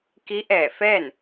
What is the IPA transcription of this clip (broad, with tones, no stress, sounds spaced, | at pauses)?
k i˧˥ ʔ ɛː˧˩ f ɛː˥˨ n